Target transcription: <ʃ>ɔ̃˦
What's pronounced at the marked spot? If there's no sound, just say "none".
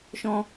ʃ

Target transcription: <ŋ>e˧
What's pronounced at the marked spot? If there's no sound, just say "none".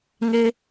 ŋ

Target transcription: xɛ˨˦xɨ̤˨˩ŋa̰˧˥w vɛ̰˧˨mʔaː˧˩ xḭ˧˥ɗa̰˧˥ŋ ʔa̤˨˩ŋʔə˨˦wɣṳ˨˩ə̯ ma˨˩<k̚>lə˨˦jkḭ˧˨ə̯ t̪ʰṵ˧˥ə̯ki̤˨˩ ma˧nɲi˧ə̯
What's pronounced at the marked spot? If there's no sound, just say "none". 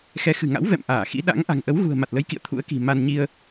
t̚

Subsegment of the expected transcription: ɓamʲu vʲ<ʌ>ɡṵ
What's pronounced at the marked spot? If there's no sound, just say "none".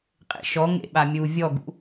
ɔ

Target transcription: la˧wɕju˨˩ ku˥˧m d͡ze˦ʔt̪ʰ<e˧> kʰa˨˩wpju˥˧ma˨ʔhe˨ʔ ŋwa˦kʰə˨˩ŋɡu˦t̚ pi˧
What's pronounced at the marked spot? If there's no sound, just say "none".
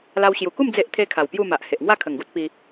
e˦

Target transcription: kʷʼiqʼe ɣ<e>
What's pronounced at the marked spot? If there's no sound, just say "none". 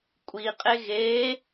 e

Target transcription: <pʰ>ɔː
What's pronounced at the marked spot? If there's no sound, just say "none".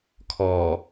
kʰ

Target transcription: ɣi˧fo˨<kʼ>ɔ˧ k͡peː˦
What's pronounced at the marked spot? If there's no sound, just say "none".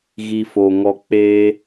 ŋ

